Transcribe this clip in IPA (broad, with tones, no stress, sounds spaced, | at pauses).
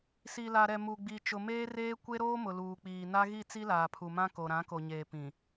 s i˨ l a˨ ɾ ɛ˨ m u˨ ɡ͡b i˨ t͡ʃ ʊ˨ m eː˦ r eː˦ kʷ e˦ ɾ oː˦ m ʊ˨ l uː˨ k͡p iː˨ n a˦ ɣ i˦˨ t͡s i˦ l aː˨ pʰ u˨ m ã˦ k o˨ ɾ ã˨˦ k o˨ ɲ eː˨ p ĩ˨